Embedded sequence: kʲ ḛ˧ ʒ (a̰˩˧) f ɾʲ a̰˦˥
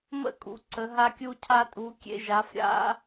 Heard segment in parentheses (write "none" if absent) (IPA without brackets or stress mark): a˩˧